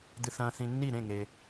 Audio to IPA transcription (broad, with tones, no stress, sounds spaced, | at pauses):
d̪ ɨ˨ θ ɐ̃ː˨ θ ĩ˨ nː i˥˩ ɾ ẽ˥˩ ŋ e˨